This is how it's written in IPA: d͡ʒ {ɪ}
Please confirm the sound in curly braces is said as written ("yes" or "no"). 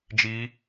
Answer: no